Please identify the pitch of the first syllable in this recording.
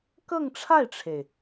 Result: falling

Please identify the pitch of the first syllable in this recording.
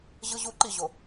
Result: high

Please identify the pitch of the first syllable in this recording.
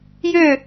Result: falling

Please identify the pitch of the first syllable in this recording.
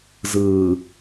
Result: low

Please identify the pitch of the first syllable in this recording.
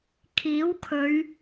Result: rising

